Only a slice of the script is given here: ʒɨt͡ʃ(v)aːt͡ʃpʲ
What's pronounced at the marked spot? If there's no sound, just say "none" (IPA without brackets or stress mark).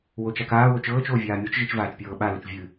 v